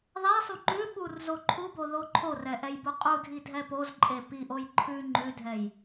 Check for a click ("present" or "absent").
present